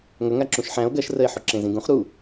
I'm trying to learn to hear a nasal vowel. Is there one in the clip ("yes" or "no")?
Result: yes